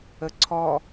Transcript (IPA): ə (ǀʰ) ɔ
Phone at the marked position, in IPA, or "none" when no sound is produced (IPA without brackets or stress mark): ǀʰ